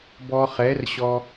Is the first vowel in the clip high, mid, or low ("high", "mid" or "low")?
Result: mid